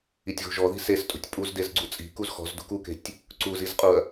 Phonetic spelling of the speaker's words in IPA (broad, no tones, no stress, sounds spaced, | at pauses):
i tʲ ɣ ṳ ʒ ɔ ð i̤ s e s tʼ ṳ tʲ pʼ u z d e z ɡ͡ǀ u t͡sʼ i̤ k u z x ɔ̤ z d ṳ k u k e̤ tʲ | ǀ u z i z qʼ u ɐ̯